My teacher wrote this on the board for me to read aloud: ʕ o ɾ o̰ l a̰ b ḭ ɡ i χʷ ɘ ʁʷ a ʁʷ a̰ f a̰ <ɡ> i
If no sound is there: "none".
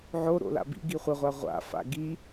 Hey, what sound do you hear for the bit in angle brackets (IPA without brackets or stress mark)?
ɡ